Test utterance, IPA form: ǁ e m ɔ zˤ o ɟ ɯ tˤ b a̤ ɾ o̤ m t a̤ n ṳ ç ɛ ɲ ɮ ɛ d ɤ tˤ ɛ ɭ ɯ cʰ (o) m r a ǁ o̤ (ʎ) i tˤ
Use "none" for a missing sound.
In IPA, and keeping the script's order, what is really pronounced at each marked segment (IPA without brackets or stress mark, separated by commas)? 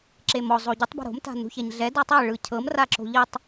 ɤ, ʎ